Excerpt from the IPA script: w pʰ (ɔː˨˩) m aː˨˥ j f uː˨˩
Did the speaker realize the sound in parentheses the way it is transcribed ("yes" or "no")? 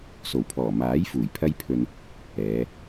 yes